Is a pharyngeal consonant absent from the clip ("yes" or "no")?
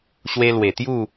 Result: yes